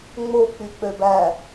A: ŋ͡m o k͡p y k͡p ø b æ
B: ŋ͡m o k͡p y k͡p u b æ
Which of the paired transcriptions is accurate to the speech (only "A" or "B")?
A